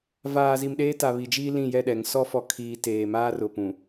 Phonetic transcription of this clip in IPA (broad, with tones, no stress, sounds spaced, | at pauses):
v aː˨ z i˨ m ɗ eː˦ t a˨ β i˨ d͡ʒ iː˦ l ĩ˦˨ j ɛ˦˨ ɗ ɛ˨ ŋ s ɔ˦ f ɔ˨ kʰ iː˨ t eː˨ m aː˦ r ʊ˨ p ũ˨